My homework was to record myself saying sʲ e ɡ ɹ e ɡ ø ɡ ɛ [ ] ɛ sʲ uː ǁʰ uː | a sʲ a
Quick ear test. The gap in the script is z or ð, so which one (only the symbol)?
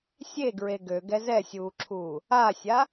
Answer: z